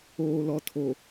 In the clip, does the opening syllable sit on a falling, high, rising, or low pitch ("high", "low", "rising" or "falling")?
low